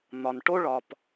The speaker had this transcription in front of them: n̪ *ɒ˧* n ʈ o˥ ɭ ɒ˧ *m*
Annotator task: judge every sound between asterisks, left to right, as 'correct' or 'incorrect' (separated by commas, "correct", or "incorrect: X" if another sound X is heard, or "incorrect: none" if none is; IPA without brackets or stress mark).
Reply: correct, incorrect: p